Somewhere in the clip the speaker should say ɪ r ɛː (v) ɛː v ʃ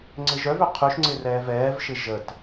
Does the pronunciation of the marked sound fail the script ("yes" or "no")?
no